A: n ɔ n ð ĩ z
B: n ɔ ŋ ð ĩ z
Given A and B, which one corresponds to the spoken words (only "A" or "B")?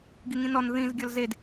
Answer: A